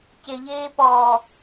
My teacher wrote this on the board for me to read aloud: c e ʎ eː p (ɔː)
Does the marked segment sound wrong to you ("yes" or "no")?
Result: no